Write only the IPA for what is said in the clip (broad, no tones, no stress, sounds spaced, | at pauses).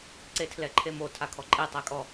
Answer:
ǀ e tʰ l ɛ ǃʰ e m o tʰ a kʰ ɔ ǃʼ e tˤ ɛ kʼ ɔ